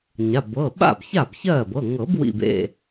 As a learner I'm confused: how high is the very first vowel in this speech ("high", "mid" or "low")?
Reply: low